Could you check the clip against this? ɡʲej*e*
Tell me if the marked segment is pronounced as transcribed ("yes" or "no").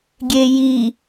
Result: no